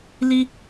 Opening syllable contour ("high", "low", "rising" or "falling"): high